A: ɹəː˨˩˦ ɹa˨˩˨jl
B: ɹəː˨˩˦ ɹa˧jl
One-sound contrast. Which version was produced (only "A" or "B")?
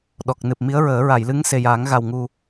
A